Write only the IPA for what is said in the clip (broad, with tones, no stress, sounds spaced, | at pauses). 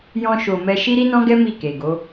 j ɔ̃˧ ʃ o˨ m ɛ˧ ʃ i˦ ɾ i˦ n ɔ̃˦ ɡ ɛ˦ m i˦˨ k e˨ ɡ o˨˦